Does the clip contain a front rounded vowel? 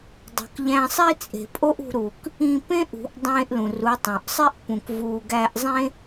no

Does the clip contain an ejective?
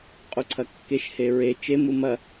yes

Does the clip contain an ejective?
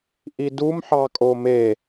yes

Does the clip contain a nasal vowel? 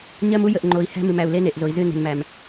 no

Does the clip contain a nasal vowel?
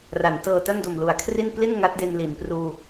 no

